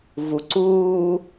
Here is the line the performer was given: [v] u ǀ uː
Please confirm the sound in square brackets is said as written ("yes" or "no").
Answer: yes